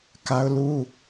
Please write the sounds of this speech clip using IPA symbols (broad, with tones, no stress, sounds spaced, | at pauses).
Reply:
k a˦ ʊ̯ l u˦